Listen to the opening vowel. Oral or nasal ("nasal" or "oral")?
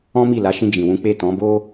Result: nasal